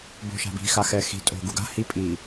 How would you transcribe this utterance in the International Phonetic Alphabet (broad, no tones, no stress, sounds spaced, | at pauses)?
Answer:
b o̤ ʃ a̤ b i̤ x a x ɛ x i̤ tʼ o̤ ɡ u ɡ a̤ h i pʼ i